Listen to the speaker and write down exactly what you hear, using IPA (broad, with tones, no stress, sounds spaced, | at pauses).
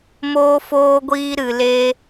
m oː˧ f oː˧ ɡʷ iː˧ ɾ ɨ˨ l e˧